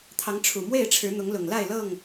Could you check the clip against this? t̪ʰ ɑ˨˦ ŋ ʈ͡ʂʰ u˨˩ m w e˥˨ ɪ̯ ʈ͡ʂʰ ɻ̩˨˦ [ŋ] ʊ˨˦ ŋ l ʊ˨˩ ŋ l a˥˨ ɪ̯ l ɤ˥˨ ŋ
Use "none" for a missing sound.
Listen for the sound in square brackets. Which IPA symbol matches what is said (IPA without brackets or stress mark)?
n̪